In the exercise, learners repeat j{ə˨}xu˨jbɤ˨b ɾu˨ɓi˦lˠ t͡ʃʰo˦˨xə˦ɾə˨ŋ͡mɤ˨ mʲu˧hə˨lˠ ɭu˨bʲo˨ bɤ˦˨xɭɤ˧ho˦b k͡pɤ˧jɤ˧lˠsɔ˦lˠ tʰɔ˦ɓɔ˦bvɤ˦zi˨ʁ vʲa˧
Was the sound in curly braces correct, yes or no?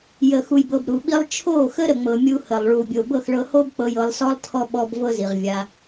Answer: yes